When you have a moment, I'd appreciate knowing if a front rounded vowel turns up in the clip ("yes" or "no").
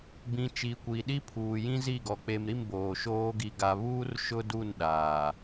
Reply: no